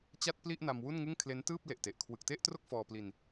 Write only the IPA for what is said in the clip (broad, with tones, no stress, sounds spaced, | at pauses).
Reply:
t͡ɕ a˥˩ t̚ p l i˥˩ ʔ n a˧ m w u˥˩ n ŋ ɯ˥˩ ŋ kʰ l e˦˥ n t ɯː˥˩ p̚ l e˨˩ ʔ t e˨˩ ʔ kʰ w ɯ˨˩ k̚ t e˥˩ ʔ t r o˥˩ k̚ f ɔː˧ p l i˧ n